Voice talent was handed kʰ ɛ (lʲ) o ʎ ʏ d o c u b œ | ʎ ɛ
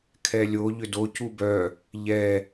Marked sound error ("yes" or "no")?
no